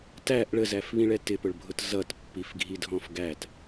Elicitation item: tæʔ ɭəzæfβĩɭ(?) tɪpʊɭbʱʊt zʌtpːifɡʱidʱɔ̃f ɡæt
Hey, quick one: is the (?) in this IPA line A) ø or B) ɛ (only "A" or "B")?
B